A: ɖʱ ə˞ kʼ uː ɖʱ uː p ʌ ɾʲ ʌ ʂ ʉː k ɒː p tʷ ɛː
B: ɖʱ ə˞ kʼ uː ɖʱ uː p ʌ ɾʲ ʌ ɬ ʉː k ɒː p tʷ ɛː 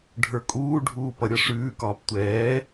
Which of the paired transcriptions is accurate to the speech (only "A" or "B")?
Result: A